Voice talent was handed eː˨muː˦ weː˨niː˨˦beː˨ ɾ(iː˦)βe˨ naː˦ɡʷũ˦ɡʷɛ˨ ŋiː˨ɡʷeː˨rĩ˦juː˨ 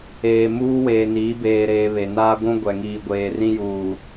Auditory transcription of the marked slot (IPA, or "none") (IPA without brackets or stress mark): eː˦